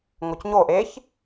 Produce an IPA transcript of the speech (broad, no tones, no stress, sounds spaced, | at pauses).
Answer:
ŋ o c ɲ o ʔ e ç